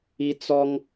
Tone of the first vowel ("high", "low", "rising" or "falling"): high